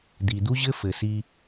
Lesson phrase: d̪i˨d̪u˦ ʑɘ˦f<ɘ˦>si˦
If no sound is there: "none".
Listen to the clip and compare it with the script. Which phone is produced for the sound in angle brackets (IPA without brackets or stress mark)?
ɘ˨